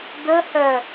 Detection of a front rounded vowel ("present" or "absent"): present